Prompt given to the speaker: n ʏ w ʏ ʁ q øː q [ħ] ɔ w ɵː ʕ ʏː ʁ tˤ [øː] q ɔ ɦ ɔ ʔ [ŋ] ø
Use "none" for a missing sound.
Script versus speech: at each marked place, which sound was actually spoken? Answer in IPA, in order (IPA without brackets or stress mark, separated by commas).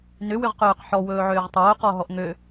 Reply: ħ, ɵː, ŋ